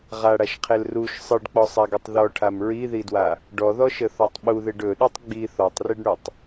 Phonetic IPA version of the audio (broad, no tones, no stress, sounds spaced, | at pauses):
ʁ a ɽ a ʃ qʰ e l r u ʃ sˤ ɯ ɖ k͡p ɔ sˤ a ɡ ɵ tˤ ð ɔ ʈʰ a m ɹ i ð i d w a | ɖ ɔ ð ɔ ʃ ə θ ɔ tˤ ɓ u ð e ɖ ɵ ɗ u tˤ ɡ͡b i θ ɔ tˤ r i ɖ ɳ u tˤ